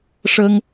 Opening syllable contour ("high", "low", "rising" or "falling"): high